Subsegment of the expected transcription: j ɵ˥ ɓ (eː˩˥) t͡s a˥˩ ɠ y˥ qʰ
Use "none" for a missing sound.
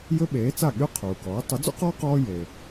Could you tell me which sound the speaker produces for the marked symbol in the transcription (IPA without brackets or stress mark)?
eː˩˥